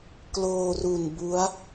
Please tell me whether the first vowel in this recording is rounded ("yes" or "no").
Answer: yes